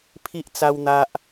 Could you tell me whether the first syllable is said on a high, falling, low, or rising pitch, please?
high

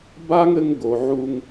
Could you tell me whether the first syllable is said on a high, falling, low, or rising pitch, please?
high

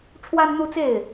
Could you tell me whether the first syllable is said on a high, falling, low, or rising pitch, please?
high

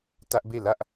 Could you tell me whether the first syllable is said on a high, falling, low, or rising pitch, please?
high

